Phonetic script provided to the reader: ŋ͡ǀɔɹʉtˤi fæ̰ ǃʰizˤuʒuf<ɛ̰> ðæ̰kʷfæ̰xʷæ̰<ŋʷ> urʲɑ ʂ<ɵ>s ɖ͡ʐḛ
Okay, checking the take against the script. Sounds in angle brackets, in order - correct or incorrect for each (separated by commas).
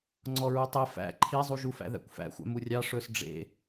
incorrect, incorrect, correct